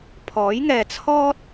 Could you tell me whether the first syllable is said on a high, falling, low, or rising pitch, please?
rising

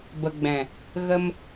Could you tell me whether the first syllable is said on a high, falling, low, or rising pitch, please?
low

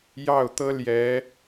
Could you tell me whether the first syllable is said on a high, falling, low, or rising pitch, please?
falling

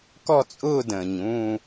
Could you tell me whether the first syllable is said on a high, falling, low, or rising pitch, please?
falling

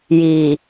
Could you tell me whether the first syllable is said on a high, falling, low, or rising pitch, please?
low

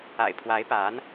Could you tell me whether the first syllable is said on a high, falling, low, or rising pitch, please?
low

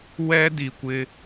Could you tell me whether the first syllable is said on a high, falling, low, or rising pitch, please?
high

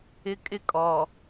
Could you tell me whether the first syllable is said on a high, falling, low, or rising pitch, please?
high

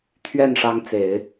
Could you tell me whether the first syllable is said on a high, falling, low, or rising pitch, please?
falling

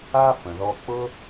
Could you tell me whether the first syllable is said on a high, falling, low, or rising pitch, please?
high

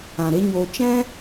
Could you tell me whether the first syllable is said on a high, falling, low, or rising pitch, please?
low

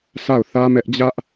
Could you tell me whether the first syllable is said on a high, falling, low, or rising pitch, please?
falling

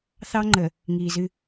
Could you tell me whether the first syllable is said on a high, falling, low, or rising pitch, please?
high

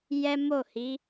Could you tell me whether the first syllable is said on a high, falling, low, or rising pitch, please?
high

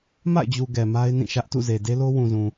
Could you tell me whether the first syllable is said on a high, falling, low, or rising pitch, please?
falling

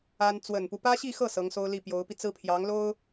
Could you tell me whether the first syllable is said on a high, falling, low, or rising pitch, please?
high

